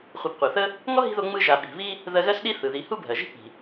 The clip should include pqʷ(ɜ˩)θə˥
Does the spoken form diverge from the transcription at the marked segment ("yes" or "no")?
no